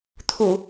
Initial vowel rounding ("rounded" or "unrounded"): rounded